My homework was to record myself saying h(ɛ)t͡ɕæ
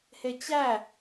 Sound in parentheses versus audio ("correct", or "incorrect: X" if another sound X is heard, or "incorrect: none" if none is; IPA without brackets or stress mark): incorrect: e